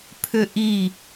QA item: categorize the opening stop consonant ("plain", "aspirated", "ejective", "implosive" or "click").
aspirated